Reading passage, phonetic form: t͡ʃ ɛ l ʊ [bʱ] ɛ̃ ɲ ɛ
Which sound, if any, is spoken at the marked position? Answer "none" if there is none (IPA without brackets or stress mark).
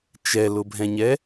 bʱ